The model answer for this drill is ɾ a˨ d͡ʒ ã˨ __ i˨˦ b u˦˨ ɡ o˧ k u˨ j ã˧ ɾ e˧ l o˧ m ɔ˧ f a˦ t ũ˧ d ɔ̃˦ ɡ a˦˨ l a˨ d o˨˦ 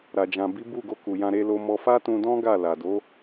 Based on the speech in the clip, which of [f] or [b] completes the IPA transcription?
b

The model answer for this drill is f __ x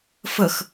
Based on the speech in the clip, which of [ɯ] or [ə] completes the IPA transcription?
ə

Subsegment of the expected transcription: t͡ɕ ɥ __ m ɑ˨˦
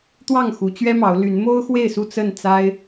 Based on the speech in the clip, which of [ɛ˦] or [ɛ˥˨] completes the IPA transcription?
ɛ˦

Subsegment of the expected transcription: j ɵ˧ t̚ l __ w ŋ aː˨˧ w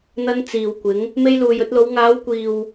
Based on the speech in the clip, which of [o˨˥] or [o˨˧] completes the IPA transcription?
o˨˧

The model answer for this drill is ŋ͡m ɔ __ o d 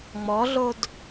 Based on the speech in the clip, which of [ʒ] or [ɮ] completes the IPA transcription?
ɮ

